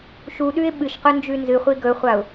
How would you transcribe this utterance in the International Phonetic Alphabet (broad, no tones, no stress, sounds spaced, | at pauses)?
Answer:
ʃ u ɗ ʉ ɪ̯ ɓ ɨ ʃ q ɵ n d͡ʒ ʉ n z ɨ χʷ i ɡ ɵ χʷ a ʊ̯